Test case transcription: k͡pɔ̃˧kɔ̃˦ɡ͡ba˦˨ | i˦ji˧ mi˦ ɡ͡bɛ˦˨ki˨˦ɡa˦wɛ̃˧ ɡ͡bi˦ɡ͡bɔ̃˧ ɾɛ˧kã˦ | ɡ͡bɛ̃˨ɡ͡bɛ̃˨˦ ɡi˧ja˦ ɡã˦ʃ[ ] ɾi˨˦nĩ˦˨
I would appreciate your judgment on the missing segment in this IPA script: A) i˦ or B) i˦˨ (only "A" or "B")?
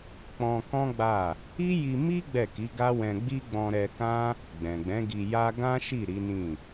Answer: B